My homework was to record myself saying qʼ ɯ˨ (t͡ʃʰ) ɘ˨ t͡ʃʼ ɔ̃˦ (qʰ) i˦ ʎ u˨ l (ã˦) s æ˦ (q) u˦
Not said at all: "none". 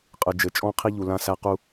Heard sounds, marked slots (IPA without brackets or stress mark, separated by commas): d͡ʒ, qʰ, ã˦, q